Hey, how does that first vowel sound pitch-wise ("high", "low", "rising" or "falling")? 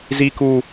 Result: low